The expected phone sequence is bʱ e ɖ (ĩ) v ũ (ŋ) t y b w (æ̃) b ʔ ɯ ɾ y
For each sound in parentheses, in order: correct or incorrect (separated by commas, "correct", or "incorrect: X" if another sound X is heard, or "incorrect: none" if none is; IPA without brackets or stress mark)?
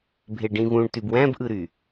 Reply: correct, incorrect: ɳ, correct